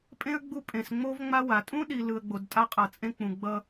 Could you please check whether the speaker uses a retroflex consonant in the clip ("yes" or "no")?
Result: no